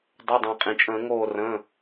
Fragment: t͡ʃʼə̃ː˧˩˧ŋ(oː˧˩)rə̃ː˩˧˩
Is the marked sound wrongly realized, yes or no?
no